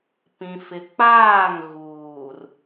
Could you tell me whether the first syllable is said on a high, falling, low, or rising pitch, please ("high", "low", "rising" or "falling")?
low